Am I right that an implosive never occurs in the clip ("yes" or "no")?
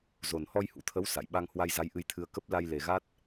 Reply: no